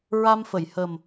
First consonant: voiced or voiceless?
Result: voiced